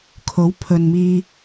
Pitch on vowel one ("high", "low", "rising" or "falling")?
rising